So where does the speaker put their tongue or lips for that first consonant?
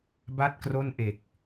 lips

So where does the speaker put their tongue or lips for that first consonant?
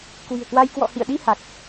velum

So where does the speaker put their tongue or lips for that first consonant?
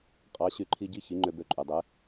uvula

